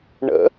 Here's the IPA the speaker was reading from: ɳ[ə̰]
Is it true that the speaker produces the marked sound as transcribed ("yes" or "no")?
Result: yes